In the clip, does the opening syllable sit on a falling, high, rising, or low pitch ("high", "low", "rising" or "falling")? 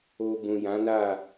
low